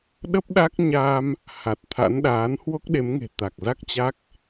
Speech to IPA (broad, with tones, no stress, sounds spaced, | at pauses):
ɗ ə˦˥ p̚ ɗ a˦˥ k̚ ɲ a˧ m | h a˨˩ t̚ t̪ʰ a̰˧˥ n ɗ aː˨˦ n h w o˦˥ k̚ ɗ e˨˦ m ŋ e̤˨˩ t̪ a˨˩ k̚ z a˦˥ k̚ t͡ɕ a˦˥ k̚